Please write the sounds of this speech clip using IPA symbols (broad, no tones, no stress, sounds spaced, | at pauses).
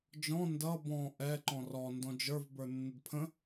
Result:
d͡ʒ ɔ̃ n d ʌ b ɔ̃ ʔ ɛ ǃ ɔ̃ r ɔ n d ɔ̃ d͡ʒ ə˞ v b ə˞ nː ə d pʰ ə̃